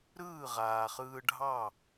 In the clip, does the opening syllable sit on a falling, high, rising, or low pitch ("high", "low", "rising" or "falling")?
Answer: falling